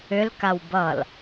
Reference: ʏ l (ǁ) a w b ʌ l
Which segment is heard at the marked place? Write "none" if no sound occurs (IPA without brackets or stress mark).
k